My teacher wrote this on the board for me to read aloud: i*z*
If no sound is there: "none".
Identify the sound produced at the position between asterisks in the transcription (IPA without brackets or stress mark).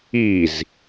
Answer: z